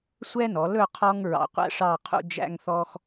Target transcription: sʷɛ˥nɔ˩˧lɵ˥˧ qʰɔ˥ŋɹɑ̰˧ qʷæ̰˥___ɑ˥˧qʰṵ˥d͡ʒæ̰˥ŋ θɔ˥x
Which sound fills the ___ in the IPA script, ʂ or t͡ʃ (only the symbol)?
ʂ